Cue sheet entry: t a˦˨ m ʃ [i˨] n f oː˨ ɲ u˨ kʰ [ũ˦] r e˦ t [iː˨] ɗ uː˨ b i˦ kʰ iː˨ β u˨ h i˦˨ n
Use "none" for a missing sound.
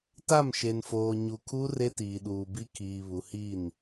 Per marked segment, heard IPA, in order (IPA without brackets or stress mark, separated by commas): e˨, u˦, iː˨